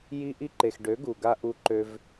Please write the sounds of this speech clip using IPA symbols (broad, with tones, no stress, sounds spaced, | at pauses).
j i˧ ʔ i˧ ǃ e˨ x ɖ ø˨˦ ɡ u˨ ɡ a˧ ʔ u˧ ǃ ø˧ v